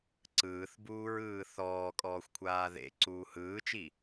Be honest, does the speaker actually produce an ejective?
yes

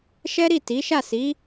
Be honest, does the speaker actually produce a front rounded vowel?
no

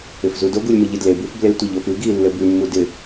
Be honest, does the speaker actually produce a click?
no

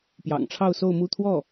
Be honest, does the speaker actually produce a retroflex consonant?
yes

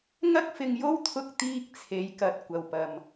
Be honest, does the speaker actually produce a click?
no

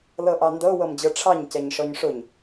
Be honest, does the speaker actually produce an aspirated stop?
yes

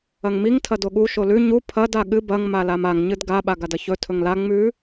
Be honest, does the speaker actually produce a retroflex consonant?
no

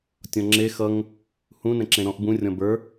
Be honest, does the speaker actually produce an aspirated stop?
no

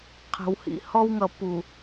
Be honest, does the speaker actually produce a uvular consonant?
yes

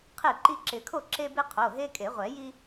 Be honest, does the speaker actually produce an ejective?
yes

